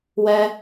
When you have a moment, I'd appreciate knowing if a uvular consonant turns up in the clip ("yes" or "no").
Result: no